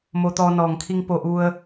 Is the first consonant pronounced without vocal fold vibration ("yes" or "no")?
no